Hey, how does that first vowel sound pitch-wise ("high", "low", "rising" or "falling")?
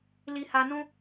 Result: low